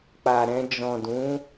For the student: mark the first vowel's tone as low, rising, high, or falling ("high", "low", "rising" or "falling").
low